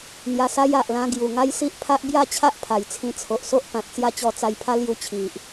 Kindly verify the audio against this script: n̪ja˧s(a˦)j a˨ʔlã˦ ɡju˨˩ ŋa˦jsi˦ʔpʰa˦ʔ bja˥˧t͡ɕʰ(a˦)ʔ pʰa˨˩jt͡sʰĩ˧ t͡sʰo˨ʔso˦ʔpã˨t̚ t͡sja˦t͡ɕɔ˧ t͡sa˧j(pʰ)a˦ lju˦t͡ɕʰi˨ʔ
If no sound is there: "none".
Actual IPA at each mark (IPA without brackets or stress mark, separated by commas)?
a˦, a˦, pʰ